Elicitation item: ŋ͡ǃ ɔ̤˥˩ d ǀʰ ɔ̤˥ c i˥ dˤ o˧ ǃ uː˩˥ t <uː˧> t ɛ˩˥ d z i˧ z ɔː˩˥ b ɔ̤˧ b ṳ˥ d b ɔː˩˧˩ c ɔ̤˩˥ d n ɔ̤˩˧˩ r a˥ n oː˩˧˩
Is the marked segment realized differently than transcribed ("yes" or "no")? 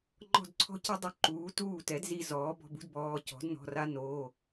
yes